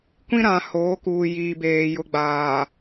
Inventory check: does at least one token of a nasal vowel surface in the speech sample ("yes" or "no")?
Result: yes